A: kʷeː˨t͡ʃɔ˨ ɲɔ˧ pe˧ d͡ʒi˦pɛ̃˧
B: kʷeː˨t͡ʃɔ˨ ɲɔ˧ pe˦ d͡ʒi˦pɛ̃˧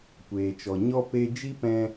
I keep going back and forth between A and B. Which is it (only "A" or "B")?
A